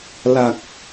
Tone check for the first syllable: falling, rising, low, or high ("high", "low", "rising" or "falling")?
low